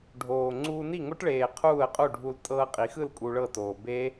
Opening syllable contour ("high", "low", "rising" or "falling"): low